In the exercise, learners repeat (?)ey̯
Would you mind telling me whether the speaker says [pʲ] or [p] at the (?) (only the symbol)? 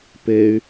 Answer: p